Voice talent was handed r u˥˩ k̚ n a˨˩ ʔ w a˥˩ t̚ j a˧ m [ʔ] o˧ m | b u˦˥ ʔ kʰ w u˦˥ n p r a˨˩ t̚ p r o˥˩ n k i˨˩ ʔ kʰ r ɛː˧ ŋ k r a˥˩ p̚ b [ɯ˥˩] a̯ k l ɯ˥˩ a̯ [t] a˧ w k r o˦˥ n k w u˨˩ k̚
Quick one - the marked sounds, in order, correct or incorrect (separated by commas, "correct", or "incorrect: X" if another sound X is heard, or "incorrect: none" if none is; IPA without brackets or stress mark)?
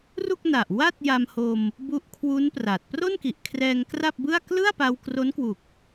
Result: incorrect: h, correct, incorrect: p